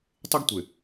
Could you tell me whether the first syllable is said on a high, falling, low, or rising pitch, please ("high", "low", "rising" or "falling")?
high